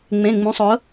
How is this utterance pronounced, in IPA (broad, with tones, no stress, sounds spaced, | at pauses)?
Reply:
ŋ͡m ẽ˩˧˩ ŋ͡m ũ˩˧˩ sˤ ʊ˩˥